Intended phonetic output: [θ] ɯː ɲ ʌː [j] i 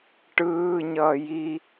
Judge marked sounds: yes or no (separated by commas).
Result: no, yes